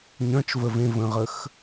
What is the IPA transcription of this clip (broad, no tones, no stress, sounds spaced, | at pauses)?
ɲ œ̃ t͡ʃ v ə v ẽ v ə̃ ʁ ə x